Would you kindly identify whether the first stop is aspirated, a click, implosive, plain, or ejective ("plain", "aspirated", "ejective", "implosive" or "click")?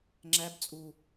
click